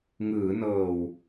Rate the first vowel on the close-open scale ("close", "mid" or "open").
close